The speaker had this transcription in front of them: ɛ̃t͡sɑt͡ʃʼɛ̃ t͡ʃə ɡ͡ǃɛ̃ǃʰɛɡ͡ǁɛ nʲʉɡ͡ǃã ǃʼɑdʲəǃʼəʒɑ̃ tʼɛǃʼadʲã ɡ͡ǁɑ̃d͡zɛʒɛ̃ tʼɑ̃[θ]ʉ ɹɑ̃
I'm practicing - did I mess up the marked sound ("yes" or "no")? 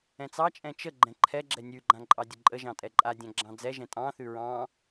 no